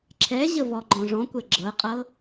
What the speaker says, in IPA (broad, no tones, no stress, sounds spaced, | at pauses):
ǁʰ ɛ ʑ ə v ɔ ɡ͡ǃ ɔ̃ ʐ ɔ̃ kʷ ɛ ɡ͡ǁ ɤ qʼ ɤ